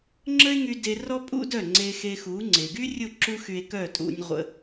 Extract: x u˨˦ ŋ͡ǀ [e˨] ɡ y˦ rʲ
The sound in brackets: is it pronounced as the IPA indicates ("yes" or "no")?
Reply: yes